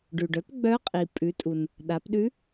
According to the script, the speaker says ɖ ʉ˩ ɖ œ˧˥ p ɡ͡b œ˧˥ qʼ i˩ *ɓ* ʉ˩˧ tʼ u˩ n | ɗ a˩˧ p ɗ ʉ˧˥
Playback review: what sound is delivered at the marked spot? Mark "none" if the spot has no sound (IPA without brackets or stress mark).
pʼ